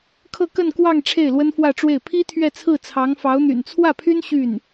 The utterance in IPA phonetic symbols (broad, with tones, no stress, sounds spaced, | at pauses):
kʰ ɤ˥˧ k ə˥˧ n k w ɑ˥˧ ŋ ʈ͡ʂʰ e˥˩ ɪ̯ l w ə˥ n f w ä˥˧ ʈ͡ʂ w e˥˩ ɪ̯ pʰ i˥ t̪ʰ ɥ ɛ˥˧ t͡sʰ ɹ̩˥˩ t͡sʰ ɑ˧˥ ŋ f ɑ˧˥ ʊ̯ n̪ y̰˨˩ n t͡sʰ w ä˥˩ pʰ y˥ n ɕ y˥˩ n